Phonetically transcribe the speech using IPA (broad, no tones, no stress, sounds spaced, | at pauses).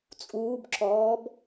t͡sʼ uː b ǁ ɔː b